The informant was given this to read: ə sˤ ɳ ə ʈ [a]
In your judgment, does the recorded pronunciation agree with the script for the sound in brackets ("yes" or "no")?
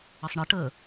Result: no